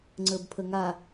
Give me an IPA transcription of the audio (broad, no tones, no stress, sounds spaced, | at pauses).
ŋ͡ǀ əː b pʰ ə ŋ a